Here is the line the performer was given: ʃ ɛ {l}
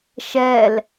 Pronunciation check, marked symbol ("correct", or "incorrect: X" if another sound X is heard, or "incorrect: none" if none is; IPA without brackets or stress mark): correct